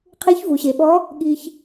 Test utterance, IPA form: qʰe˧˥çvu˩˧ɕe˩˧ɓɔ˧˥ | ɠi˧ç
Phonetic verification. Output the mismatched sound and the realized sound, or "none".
none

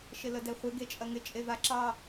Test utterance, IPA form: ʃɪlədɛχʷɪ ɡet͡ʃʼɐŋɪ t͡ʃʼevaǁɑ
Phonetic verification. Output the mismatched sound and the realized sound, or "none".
none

